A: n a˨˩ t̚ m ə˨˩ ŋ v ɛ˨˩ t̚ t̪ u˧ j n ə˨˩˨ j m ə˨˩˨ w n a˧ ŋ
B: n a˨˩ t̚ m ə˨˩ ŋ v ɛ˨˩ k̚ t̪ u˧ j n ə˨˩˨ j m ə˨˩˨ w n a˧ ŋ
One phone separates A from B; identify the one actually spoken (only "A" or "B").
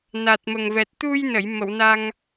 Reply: A